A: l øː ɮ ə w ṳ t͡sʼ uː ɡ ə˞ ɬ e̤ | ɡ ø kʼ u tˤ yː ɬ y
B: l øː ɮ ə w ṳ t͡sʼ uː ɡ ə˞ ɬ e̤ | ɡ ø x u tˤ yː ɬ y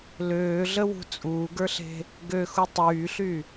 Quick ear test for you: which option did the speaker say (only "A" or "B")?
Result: B